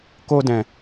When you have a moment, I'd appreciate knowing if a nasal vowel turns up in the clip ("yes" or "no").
yes